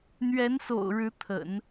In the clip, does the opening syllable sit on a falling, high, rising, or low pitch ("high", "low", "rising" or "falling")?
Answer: rising